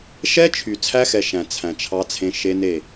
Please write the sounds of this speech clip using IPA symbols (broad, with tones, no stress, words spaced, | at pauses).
ʃɛ˦ t͡ʃʰy˨ t͡sʰæ˦xɛ˨ ʃæ̃˨ t͡sʰæ̃˨t͡ʃʰɑ˦t͡sʰẽ˦ ʃe˦ne˦˨